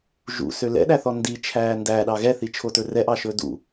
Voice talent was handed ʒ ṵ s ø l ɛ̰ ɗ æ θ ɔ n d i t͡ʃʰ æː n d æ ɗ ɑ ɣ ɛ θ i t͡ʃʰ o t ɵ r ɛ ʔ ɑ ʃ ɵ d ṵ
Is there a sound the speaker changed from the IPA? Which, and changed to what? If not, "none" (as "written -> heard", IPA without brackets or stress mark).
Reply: none